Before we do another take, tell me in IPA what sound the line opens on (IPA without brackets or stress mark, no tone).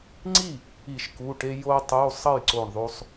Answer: ŋ͡ǀ